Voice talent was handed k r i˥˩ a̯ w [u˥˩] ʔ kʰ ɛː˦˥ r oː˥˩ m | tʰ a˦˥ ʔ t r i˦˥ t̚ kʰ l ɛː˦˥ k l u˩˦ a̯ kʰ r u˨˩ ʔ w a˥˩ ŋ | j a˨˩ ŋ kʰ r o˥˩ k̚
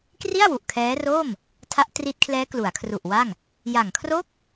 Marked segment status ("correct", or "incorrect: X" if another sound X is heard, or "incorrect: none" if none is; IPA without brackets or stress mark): incorrect: u˨˩